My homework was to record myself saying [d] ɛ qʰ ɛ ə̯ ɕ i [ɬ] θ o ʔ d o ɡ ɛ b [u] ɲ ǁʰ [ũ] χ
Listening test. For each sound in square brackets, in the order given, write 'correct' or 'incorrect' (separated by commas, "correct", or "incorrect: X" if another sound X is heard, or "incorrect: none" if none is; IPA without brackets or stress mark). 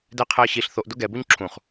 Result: correct, correct, correct, correct